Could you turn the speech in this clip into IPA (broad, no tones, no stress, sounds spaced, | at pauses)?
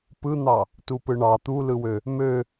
p ɯ n̪ ɑ | t u p ɯ ɳ ɑ t̪ u l ɯ w ø | m ø